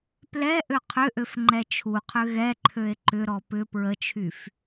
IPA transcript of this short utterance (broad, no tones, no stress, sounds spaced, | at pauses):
p l ɛ ʔ ø qʰ ʏ ʔ ø f ŋ͡ǃ ɛ t͡ʃʰ u qʰ ʏ ɣ ɛ ǃʰ ø e̯ ǃ ʏ ɾ ɔ p ʏ p ɹ ə t͡ʃʰ y f